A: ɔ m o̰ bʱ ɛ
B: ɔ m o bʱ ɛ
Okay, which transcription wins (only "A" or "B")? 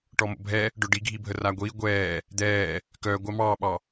A